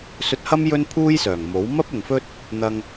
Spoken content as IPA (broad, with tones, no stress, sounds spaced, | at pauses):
s ɵ˧ t̚ h ɐ˥ m j ɵ˥ n pʰ uː˥ j s œː˨˩ ŋ m o˨˥ w m ɐ˥ p̚ ʊ˨ ŋ f ɵ˥ t̚ | n̪ ɐ˧ ŋ